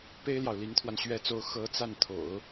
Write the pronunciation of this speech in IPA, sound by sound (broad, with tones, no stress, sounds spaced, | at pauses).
p e˥ ɪ̯ l j ɑ˨ ʊ̯ l i˧˥ ŋ t̪ʰ w a˧ n ɕ ɥ ɛ˥ t͡s o˥ ʊ̯ x ɤ˧˥ t͡s a˥˩ n t̪ʰ o̰˨˩˦ ʊ̯